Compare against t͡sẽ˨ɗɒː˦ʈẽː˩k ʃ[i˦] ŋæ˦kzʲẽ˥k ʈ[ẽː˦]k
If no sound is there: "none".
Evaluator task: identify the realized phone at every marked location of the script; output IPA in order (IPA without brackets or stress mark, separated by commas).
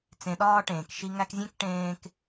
i˦, ẽː˦